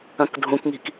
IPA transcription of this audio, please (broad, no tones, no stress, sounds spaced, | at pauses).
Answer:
ɐ̃ k dʱ ũ k ŋ i̤ k